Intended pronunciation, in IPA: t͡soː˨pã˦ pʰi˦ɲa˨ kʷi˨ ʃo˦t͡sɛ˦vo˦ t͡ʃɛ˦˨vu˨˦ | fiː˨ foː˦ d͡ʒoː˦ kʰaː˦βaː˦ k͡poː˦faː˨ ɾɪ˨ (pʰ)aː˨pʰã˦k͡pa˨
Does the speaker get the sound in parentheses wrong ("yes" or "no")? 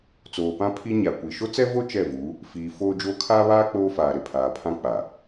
no